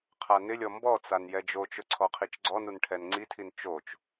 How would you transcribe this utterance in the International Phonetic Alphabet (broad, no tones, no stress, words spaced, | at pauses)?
qʰanɪlʲɔ mbɔt͡san jɛd͡ʒot͡ʃʊ ǀʰɔqʰit͡ʃɡ͡ǀɔnun ʈʰɛnŋ͡ǀitʰin t͡ʃot͡ʃ